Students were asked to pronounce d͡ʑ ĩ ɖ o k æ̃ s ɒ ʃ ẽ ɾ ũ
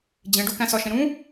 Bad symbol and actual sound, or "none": ĩ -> ẽ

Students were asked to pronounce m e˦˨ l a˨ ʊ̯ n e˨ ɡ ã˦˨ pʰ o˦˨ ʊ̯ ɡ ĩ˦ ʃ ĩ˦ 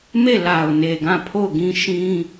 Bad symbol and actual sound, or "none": none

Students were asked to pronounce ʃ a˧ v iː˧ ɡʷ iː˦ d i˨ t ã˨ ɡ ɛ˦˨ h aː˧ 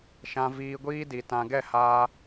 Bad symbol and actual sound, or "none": a˧ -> ã˧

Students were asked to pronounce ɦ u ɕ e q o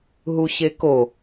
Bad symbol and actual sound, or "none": q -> k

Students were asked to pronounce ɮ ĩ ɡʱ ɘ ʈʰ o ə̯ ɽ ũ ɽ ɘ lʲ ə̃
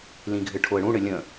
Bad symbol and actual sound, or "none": ɮ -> l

